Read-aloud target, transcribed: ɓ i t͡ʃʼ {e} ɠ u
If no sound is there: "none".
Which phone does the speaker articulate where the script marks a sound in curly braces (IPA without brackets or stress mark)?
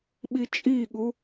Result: i